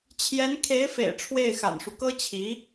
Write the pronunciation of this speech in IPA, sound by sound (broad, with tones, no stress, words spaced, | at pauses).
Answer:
t͡ɕʰjɛ˧˥n kʰe˧˥ɪ̯fḛ˨˩ɪ̯ ʈ͡ʂʰwe˥˩ɪ̯xa̰˨˩nʂu˦ kɤ˥t͡ɕʰi˧˥